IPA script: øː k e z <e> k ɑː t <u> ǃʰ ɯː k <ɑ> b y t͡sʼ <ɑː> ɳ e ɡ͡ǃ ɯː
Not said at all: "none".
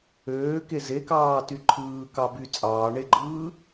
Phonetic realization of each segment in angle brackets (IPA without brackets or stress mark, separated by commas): e, y, ɑ, ɑː